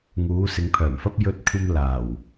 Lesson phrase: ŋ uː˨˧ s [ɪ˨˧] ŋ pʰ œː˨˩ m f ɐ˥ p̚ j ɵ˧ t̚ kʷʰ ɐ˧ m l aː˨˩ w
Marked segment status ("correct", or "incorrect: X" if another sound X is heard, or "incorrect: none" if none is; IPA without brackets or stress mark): correct